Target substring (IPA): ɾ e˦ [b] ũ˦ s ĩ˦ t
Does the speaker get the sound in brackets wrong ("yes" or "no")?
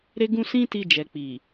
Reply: yes